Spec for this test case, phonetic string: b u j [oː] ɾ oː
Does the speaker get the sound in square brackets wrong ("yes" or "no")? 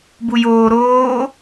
no